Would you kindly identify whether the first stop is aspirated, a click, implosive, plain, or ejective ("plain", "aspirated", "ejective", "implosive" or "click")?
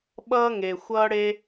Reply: implosive